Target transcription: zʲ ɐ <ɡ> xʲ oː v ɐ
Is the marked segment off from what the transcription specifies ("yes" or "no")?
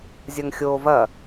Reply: yes